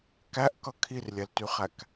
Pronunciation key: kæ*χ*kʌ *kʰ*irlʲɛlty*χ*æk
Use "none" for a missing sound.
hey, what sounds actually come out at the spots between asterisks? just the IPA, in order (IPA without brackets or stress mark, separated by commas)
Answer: ʔ, kʰ, χ